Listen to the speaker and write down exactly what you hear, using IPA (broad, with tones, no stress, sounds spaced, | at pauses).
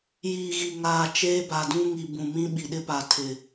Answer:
j iː˨ ɣ i˨ ŋ aː˨ t͡ʃ eː˦ b a˨ d ũ˦ ŋ i˨ b ũ˨ m ĩ˦ ɓ i˨ ɗ ɪ˦ p a˨ tʰ ɪ˨